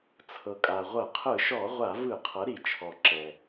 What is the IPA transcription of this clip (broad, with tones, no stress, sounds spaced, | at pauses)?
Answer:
t͡sʰ ɤ˩ kʼ a˩ ʁʷ ɤ˧˩˧ qʰ ɯ˧˩˧ ʃ ɔ˧˩˧ ʁʷ a˧˩˧ v ɯ˧˩˧ qʰ ɤ˩˥ ɾ i˩ t͡ʃʰ ɔ˩ ǁ ɛ˩